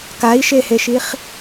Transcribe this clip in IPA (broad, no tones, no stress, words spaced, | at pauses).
kai̯ʃeheʃiχ